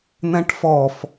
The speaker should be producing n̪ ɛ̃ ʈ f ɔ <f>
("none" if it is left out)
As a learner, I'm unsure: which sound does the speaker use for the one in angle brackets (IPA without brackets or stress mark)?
f